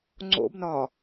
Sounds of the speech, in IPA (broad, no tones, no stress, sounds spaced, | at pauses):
ŋ͡ǀ o̰ b n ɒ